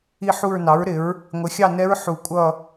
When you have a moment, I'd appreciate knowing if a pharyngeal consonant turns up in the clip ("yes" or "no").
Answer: yes